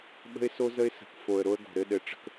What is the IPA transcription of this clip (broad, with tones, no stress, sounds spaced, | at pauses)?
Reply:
ɓ ə̤˦ ɪ̯ s o˦ z ə˦ ɪ̯ s ə̤˨ k f o˨ ə̯ ɾ o˦ ə̯ ɡ o̤˨ ɾ ɘ˦ ɗ ɘ˨ ʈ͡ʂ ə̤˦ k